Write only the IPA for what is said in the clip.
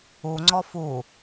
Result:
u ŋ͡ǀ ɔ f u

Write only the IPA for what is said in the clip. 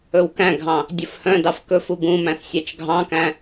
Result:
ɵ w k æ̃ ɡʱ ɑ̃ | dʲ ɵ f h œ̃ d ɑ f k ɵ f u ɡ ũ m æ̃ θ sʲ æ t͡ʃ ɡʱ ɑ̃ k æ̃

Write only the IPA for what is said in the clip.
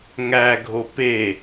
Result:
ŋ æ ɡʱ o p e

